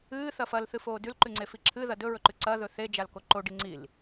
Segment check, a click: present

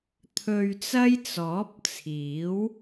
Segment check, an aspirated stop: present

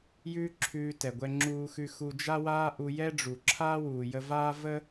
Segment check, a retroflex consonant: present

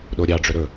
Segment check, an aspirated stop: absent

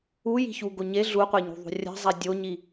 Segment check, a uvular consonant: present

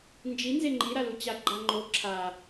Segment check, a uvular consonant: absent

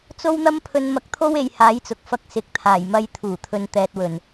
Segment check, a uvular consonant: absent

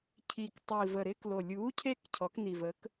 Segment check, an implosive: absent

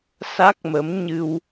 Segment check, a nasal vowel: absent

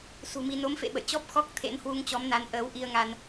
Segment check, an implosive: present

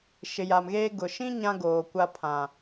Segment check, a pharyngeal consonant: absent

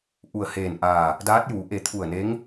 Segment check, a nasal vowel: absent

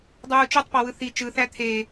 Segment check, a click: absent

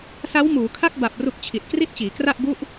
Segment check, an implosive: absent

